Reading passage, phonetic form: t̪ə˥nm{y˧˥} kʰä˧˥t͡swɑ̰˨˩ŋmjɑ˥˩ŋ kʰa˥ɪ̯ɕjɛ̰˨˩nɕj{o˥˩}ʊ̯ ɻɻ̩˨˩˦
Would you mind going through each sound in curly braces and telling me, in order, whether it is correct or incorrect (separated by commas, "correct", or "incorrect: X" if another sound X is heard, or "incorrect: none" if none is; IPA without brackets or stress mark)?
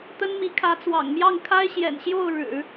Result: incorrect: i˧˥, correct